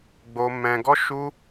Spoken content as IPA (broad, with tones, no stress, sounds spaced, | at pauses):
ɡ͡b o˦ m ɛ̃˦ ɡ ɔ˦ ʃ u˦